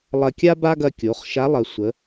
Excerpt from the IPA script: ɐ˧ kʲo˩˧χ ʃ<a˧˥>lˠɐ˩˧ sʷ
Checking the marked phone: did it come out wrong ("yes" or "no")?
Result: no